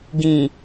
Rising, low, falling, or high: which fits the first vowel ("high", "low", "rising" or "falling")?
low